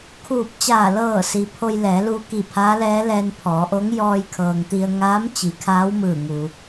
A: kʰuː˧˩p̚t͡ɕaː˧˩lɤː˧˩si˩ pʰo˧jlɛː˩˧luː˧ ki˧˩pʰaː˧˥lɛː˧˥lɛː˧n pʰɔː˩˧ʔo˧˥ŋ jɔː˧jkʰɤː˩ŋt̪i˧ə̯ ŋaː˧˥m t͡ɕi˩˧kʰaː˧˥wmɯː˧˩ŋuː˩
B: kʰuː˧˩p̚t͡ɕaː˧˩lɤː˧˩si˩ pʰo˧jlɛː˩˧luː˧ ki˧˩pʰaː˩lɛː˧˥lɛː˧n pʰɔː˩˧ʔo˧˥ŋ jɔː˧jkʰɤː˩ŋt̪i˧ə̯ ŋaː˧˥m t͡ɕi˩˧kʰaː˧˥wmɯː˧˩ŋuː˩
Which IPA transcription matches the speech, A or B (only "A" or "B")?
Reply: A